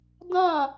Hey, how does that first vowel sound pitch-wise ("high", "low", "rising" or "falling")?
falling